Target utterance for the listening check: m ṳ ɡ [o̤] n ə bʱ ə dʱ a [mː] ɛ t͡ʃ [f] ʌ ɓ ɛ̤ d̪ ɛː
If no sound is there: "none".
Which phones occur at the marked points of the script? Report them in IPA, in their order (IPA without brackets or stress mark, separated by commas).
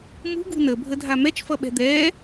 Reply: ṳ, m, f